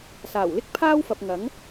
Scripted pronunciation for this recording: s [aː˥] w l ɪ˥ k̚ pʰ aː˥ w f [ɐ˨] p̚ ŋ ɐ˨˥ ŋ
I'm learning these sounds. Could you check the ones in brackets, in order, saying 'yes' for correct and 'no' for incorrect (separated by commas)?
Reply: no, yes